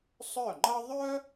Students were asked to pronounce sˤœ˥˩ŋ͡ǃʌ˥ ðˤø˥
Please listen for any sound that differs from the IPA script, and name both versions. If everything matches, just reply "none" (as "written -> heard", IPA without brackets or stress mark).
ø˥ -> œ˥